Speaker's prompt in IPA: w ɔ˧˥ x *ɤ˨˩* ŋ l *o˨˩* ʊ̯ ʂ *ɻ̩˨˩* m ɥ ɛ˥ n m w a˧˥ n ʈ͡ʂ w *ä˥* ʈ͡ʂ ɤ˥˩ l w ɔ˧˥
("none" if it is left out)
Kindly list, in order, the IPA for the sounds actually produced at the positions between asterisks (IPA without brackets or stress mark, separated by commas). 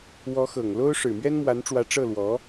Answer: ɤ˨˩, o˥, ɻ̩˨˩, ä˧˥